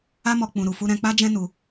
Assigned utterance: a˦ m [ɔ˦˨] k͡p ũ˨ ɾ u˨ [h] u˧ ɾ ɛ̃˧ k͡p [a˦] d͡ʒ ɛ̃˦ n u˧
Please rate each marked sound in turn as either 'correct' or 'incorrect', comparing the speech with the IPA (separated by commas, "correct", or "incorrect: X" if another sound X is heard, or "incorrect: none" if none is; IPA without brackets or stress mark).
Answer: incorrect: ɔ˧, incorrect: f, correct